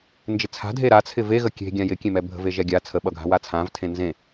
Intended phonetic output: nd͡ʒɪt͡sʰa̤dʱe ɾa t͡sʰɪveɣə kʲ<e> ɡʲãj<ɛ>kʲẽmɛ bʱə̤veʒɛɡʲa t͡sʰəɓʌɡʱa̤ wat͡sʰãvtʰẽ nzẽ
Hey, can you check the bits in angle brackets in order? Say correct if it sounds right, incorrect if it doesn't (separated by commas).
incorrect, incorrect